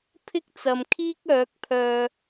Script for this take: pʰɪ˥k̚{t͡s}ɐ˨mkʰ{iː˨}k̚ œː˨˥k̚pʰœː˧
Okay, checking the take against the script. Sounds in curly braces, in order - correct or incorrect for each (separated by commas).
correct, incorrect